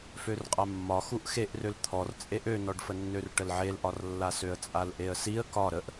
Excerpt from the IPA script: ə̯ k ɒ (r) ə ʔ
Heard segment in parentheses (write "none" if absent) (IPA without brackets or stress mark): ɾ